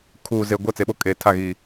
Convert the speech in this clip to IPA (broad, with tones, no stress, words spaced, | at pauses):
kʰuː˨ ze˨ ɡʷɛ˦˨t͡se˨ɓo˦ kʼe˨ tʰa˦˨ɣi˨